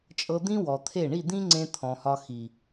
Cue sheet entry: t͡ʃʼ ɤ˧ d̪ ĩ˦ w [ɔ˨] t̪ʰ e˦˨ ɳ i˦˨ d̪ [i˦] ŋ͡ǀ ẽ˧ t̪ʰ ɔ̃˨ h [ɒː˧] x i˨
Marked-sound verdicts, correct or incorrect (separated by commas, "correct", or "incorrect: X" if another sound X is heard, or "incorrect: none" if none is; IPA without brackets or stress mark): correct, incorrect: ĩ˦, incorrect: ɒ˧